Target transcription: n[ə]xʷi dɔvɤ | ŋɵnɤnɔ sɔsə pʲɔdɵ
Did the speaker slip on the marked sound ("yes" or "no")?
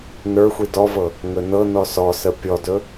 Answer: yes